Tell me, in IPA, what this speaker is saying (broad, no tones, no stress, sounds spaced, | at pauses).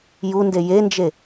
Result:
j u n d e j e n d͡ʒ e